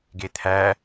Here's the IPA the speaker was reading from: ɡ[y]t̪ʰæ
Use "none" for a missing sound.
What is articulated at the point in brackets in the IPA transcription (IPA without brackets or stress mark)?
e